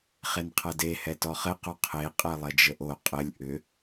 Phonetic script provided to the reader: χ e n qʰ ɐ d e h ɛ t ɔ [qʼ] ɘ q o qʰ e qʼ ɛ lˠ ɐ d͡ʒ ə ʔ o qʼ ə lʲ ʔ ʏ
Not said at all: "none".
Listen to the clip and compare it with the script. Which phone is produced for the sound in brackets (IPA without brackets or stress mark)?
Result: χ